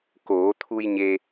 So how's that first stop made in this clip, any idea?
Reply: plain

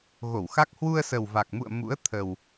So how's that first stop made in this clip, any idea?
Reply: plain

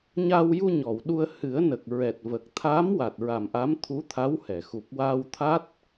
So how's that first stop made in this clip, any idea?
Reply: implosive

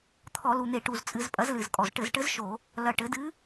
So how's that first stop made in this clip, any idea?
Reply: aspirated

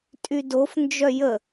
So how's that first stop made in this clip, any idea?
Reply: ejective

